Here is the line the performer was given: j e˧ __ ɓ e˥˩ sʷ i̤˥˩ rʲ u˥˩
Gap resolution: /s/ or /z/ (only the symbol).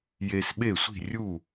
s